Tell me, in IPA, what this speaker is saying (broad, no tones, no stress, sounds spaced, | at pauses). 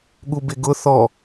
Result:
ɠ u b ɪ ɡ ʊ θ ɔ